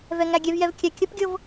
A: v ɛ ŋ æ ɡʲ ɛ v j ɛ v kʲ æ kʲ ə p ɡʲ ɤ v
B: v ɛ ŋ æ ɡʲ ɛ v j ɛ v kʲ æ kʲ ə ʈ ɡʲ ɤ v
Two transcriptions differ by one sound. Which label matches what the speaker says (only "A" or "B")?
A